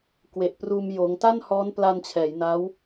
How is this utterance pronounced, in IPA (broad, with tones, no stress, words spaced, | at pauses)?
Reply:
kwe˨˩ʔpruː˧m joː˦˥ŋ ta˥˩nhɔː˦˥npla˧n t͡ɕʰɛː˩˦jna˦˥w